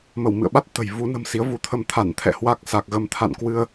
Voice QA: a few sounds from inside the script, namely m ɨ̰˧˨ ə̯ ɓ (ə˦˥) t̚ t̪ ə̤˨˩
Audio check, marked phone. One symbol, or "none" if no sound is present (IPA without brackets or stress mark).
a˦˥